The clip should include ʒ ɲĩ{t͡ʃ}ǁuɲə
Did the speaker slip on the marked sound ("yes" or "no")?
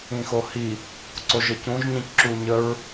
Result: yes